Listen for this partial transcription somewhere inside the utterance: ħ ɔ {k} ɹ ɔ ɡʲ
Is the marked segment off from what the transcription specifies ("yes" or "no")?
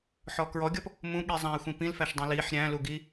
no